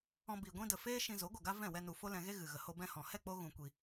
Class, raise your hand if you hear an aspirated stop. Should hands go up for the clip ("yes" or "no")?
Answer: no